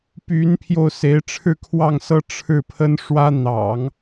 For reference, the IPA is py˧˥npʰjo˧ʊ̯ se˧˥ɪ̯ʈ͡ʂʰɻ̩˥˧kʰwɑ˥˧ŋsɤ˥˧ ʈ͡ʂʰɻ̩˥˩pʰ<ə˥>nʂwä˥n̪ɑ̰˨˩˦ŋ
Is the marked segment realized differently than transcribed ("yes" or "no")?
no